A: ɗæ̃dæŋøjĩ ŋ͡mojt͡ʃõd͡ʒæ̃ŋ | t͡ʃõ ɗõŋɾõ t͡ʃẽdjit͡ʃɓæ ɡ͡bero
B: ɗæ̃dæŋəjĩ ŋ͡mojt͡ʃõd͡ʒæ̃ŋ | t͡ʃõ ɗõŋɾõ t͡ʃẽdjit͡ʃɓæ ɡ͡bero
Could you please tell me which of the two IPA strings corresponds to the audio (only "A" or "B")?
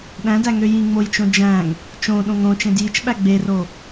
A